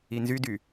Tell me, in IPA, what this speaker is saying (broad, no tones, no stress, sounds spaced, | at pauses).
i n z y d y